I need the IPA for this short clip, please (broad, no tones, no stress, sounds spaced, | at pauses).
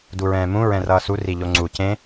d u ɹ ɛ̃ː m ũ ɹ ɛ̃ r ʌː s u r i ʎ o ŋ͡ǀ u c ẽ